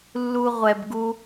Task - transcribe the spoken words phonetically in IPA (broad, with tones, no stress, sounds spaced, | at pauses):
lː u˧ ʁʷ ɛ˧ b ɡ u˥